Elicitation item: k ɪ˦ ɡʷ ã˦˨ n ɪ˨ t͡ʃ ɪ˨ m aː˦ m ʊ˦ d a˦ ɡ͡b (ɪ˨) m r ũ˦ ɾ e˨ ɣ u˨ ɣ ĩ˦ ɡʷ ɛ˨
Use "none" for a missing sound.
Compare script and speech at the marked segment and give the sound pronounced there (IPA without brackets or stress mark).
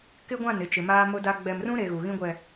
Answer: ɛ˨